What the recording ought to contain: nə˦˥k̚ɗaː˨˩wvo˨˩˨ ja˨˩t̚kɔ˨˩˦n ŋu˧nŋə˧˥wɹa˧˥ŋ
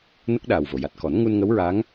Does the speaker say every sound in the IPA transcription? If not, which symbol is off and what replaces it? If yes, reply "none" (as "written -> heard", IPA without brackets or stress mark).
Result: none